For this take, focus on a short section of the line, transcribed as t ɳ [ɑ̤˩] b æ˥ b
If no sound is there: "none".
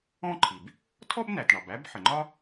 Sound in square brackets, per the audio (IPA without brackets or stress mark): ɑ˩